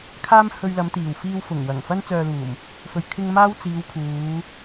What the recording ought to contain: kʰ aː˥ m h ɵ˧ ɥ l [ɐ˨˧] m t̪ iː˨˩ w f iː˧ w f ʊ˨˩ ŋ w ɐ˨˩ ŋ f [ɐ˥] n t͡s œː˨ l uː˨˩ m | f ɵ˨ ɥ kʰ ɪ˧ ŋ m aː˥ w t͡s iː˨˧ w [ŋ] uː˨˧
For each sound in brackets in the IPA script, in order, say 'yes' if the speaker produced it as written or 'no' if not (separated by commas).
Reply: yes, yes, no